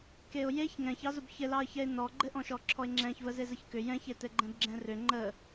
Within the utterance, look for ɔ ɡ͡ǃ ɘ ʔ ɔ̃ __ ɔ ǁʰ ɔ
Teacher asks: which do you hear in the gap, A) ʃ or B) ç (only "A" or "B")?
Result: A